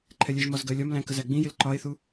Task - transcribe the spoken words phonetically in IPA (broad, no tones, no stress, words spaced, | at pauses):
ǃʰɛlʲɛʒmɒz ɡɜlʲɒmlæ̃ kəzæɡ͡bĩjɪl ǃɒe̯θu